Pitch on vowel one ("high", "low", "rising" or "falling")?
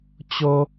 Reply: high